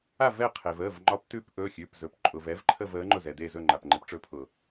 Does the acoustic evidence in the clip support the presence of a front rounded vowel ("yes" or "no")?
no